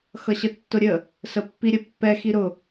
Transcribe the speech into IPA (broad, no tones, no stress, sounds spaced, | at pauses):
x ʌ ɕ ə tː ʊ ɾʲ ə | s ə pː i ɾʲ ə pː ɛ x i ɾ ʊ